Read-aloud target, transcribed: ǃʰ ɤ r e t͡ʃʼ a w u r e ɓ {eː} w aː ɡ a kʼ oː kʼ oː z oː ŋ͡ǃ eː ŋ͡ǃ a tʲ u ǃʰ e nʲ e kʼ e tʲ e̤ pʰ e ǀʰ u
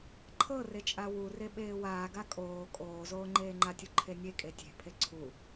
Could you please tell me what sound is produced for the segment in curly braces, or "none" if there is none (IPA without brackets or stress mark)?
eː